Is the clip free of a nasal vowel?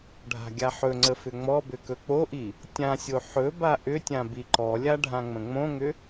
no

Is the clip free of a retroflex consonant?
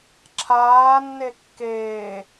yes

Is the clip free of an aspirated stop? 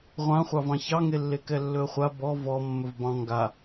yes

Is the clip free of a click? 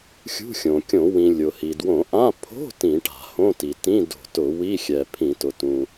yes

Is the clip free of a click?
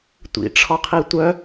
yes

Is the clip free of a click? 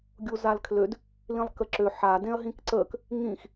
no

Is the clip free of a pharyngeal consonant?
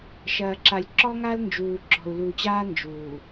yes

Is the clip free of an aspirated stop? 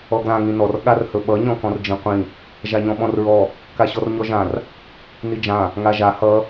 yes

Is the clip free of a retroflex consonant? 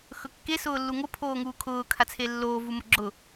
yes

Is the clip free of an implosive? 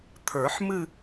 yes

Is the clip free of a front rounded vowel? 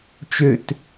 no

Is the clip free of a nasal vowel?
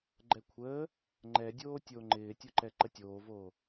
yes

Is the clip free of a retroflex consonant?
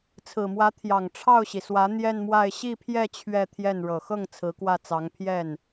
no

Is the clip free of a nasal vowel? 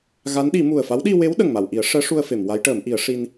yes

